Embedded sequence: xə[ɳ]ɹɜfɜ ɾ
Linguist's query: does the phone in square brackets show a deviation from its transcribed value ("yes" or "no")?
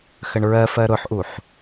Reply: no